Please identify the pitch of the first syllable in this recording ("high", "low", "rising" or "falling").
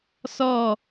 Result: falling